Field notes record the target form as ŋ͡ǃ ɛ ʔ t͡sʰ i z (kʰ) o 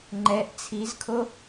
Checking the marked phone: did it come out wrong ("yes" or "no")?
no